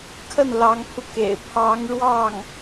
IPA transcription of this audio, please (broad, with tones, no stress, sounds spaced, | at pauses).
kʰ ə˥˩ n l ɑ˧˥ ŋ pʰ u˧ k ḛ˨˩ ɪ̯ pʰ ɑ˧˥ ŋ ɻ w ɑ˥˩ ŋ